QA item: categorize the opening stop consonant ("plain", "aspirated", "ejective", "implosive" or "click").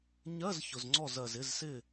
click